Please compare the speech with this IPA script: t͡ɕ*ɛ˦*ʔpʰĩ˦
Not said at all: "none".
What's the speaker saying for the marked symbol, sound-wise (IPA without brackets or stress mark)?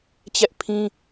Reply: ɛ˦